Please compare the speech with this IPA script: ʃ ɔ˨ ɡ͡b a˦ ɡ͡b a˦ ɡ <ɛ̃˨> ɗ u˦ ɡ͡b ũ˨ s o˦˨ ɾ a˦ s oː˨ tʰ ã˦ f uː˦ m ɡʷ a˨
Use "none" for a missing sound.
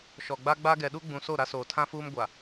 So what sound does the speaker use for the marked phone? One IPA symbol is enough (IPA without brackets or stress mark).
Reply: ɛ˨